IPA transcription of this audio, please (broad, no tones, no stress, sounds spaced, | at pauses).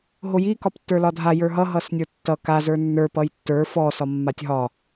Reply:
ɦ o j i k ɒ p tː ə˞ l ɒ dʱ a j ə˞ ɦ ʌ ɦ ʌ s nʲ ə˞ tː ʌ k a z ə˞ nː ə˞ p ʌ j tː ə˞ f ɔ s ɒ mː a tʲ ɦ ɒ